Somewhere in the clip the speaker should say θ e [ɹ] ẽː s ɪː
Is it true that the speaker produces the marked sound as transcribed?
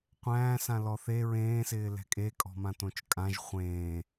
yes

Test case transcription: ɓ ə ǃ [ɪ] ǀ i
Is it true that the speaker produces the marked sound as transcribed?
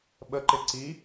yes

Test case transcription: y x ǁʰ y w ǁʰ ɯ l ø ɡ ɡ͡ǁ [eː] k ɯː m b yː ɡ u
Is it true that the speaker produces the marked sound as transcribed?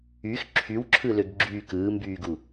no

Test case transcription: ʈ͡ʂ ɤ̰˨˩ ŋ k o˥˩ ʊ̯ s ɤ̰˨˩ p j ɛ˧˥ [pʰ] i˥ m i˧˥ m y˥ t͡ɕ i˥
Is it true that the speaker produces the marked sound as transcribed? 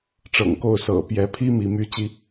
yes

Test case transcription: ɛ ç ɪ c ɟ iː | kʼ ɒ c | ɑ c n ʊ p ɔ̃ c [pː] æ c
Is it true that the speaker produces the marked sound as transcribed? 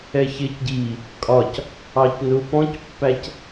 yes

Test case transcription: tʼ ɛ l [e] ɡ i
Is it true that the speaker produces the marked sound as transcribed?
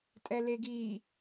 yes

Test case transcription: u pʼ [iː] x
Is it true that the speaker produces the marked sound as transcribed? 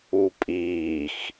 yes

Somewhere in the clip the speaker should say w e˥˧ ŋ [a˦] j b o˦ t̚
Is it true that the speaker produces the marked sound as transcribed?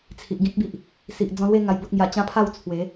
no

